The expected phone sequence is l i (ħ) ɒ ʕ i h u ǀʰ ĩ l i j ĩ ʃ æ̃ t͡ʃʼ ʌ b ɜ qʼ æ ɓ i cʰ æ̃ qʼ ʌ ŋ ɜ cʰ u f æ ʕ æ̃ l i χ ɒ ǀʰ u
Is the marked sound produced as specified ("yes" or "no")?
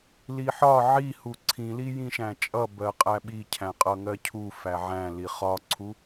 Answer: yes